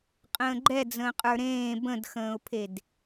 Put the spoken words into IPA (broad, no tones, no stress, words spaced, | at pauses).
qʼə̃ːɡ͡ǃɛd͡zə̃ː qʼə˞ɾẽː bə̃dxə̃ːʊ̯pʰed